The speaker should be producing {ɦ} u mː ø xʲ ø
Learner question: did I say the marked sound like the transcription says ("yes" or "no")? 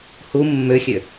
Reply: no